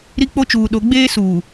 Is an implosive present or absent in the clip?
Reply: present